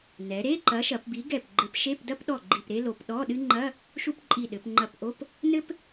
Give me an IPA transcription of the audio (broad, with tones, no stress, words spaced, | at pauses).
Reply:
nɛ˩˧ɾe˧˥˧ ǃɐ˨˥ʃɐ˩˧pbi˨˥ ɡɛ˧˩p ɡ͡ǃɘ˨˥p ʃe˧˥˧pdɐ˥pɗɔ˧˩ ɡ͡ǃi˧˩pɾe˥lo˩˧p ɗɔ˧˥˧ɗɨ˥ ŋ͡ǃɐ˧˥˧ | ʃu˥pǃʼi˧˩ɗɘ˩˧p ŋ͡ǃɐ˧˩pʔo˧˥˧p | nɘ˥p